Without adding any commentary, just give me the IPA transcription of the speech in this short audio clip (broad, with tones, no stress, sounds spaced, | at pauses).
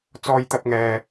t͡s ɔː˧ j t̪ ɐ˧ p̚ ŋ ɛː˨